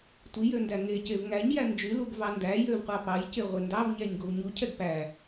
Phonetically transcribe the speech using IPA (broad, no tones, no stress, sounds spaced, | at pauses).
tʷ i j ø n d æ ŋ e c e v ŋ æ ɲ j æ n d͡ʒ y l u ɡ v ɑ n d æ j ø v qʷ ɑ p ɑ j c e ʁʷ e n d ɑ v ɲ æ ɲ ɡ o v ɲ u cʰ ɛ ɡ p æ